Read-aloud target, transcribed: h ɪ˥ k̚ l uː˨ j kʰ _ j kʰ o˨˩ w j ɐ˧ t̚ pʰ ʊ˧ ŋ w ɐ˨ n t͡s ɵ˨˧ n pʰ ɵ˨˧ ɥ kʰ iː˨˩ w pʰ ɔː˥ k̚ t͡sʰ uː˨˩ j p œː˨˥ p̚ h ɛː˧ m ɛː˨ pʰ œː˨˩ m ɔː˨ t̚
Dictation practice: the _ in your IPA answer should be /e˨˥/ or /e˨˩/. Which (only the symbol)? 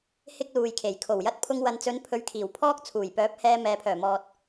e˨˩